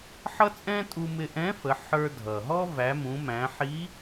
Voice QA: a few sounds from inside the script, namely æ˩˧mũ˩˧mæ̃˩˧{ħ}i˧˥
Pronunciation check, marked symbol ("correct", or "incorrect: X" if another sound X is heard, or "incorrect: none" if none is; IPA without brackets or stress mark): correct